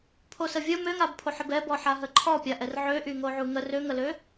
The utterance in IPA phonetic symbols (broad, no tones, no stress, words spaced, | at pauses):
pʰosəvʲə møŋabpʰoħəb ɛbɔ ħaɦəǃʰɔ pʲaʔɛrʕøʔy ŋoʕuŋə røŋəlø